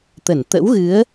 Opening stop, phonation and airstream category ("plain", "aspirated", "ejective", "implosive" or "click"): plain